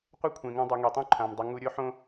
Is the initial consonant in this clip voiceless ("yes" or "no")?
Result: yes